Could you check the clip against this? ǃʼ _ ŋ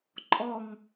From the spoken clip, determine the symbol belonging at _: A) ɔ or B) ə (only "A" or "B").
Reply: A